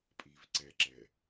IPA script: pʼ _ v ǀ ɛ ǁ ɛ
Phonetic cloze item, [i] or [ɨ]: i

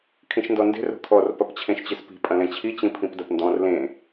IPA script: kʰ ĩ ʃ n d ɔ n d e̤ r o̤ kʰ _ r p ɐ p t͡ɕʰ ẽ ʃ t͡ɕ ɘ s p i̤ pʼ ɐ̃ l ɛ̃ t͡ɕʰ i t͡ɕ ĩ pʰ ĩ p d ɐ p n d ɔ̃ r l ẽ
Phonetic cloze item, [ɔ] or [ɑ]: ɔ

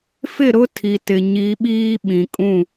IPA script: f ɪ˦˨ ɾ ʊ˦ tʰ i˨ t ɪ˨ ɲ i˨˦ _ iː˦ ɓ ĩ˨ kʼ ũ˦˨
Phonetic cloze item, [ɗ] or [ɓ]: ɓ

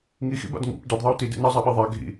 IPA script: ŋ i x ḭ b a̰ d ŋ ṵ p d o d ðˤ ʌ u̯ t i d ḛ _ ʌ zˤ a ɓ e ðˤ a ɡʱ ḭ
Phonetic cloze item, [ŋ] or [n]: n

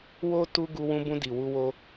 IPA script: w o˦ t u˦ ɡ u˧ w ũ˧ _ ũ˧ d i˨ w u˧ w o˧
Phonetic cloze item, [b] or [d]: b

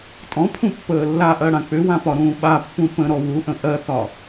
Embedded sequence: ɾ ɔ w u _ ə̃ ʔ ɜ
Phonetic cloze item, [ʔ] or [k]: ʔ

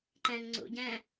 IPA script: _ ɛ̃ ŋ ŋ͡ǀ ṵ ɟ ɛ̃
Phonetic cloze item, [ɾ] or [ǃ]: ǃ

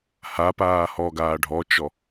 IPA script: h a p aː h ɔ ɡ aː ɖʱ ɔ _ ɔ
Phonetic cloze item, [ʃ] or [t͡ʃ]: t͡ʃ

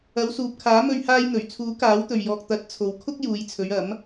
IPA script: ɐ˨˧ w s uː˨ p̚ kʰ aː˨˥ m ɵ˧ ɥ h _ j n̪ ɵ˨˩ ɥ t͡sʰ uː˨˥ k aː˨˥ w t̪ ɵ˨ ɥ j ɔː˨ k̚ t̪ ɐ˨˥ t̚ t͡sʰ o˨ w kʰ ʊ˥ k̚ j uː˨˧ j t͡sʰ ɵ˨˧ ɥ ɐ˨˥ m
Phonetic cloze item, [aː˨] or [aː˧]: aː˧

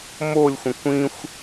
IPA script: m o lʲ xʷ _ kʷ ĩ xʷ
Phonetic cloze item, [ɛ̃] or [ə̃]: ə̃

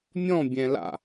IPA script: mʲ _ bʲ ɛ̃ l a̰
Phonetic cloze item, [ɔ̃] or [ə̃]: ɔ̃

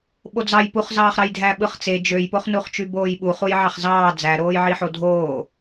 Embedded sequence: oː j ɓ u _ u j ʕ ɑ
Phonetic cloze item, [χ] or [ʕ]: χ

